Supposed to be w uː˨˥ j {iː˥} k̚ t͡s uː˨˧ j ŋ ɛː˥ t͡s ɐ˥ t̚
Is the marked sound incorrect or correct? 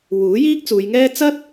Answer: correct